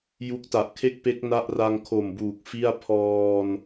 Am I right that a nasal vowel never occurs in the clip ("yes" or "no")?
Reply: yes